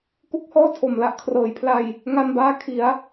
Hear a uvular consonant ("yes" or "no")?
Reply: no